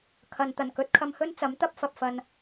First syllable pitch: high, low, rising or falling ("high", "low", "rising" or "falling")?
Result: low